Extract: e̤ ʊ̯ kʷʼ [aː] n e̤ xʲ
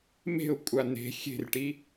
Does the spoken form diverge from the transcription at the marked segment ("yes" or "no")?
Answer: yes